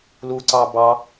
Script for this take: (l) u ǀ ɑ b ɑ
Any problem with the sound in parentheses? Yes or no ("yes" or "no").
no